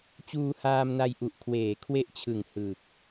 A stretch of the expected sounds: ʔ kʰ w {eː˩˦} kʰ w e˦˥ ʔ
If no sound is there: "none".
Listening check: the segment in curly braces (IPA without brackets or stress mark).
eː˩˦